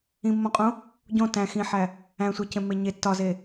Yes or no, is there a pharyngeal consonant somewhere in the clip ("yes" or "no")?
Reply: yes